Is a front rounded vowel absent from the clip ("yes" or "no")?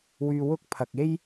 no